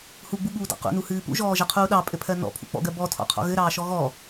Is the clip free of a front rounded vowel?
yes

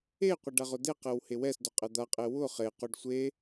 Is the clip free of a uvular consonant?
no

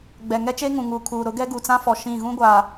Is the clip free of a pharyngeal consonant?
yes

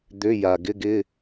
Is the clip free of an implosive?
yes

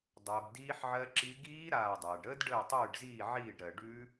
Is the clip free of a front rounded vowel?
yes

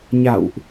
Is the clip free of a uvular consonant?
yes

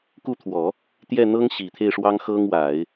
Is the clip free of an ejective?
yes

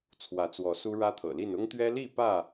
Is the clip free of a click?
yes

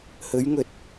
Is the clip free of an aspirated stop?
yes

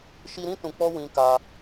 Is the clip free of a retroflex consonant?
yes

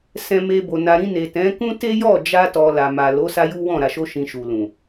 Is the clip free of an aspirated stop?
yes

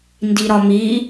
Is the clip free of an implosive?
yes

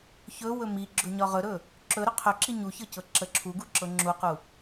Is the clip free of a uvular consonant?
no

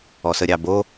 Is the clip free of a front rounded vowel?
yes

